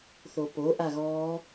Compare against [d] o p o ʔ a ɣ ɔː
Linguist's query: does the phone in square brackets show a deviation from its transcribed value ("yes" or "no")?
yes